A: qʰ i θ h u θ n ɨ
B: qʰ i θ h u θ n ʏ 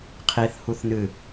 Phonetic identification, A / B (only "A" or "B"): A